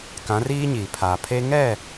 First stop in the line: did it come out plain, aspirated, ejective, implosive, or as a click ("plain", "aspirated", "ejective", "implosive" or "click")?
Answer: plain